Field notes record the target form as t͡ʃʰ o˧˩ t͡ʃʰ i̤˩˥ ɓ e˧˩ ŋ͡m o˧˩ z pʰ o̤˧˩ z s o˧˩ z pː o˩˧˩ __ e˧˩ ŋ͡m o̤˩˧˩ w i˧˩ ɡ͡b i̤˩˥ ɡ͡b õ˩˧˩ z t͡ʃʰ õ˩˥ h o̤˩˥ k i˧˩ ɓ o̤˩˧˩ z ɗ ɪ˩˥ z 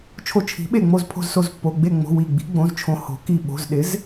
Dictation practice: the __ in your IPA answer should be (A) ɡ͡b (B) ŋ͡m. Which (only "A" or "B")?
A